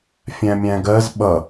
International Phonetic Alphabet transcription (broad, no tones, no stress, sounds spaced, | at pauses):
fʲ æ̃ mʲ æ̃ ɡ ɜ z ɓ ʌ